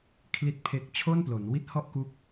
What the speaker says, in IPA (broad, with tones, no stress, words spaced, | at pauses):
kʰli˥˩t̚pʰe˥˩k̚ t͡ɕʰo˥˩nplo˩˦nwi˥˩t̚ hɔ˥˩ʔku˦˥k̚